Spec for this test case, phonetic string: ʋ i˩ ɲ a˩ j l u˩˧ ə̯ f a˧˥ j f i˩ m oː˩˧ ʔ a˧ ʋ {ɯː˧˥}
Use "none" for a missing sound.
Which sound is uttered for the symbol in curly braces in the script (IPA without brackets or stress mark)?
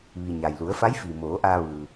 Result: ɯː˩